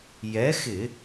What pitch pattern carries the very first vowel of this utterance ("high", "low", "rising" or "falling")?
rising